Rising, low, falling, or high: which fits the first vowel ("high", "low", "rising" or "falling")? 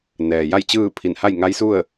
low